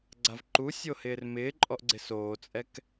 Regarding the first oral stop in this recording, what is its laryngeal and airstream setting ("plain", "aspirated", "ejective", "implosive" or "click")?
click